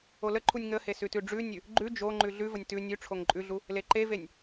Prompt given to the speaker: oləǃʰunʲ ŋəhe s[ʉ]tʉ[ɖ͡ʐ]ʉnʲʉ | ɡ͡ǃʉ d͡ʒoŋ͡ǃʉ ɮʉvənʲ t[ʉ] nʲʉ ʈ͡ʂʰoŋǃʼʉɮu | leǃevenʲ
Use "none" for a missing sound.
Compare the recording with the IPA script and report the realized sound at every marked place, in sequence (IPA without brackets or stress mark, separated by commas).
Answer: ʉ, ɖ͡ʐ, ʉ